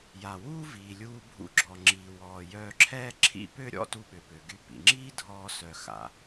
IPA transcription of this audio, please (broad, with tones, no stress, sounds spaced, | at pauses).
j a˩ w uː˥ v iː˩ lʲ uː˧ bʱ ṵ˧ ɡ͡ǁ ɔ˩ ŋ͡ǁ iː˩ w ɔː˩ j œː˧ ǁʰ ɛː˥ ǁʰ ḭ˥ p ø˥ ɾʲ ɔ̰˥ t u˧ ɓ ø˩ p ø˩ ɡ y˧ p ḭ˩ ŋ͡ǁ iː˥ dʱ ɔː˧ s œ˩ x a̰˩